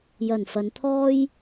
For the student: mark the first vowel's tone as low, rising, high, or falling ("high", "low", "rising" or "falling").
low